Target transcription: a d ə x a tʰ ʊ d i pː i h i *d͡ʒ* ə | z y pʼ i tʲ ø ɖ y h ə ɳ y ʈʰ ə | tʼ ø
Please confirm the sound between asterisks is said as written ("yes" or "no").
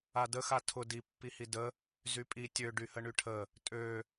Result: no